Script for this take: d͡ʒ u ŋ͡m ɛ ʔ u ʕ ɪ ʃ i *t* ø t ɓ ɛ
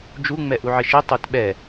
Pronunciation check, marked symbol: incorrect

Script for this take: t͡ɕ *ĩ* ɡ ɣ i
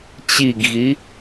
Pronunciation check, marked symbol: incorrect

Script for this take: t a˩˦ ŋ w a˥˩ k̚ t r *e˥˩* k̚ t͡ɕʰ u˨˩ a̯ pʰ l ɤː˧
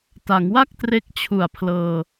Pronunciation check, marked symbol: incorrect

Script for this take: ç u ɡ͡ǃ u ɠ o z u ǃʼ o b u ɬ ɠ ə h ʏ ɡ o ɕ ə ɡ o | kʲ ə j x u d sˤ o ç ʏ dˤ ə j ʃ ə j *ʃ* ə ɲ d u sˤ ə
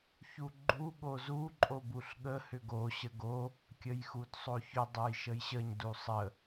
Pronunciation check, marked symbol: incorrect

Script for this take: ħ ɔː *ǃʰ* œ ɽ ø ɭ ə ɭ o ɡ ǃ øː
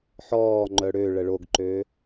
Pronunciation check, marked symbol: incorrect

